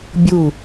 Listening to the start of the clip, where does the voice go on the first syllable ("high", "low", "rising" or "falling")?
falling